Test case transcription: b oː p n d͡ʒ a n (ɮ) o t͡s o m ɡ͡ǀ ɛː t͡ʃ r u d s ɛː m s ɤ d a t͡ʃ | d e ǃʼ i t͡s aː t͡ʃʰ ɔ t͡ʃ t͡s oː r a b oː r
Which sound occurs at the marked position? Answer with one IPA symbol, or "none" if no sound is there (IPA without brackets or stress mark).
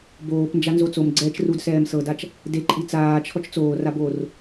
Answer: z